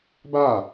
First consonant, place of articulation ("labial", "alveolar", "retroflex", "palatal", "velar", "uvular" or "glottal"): labial